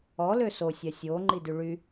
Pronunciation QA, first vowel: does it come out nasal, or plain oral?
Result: oral